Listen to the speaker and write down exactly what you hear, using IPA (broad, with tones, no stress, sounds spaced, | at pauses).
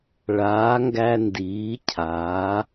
ɭ aː˨˥ ŋ ɡ æ˦ n d iː˩˧ cʰ aː˩˧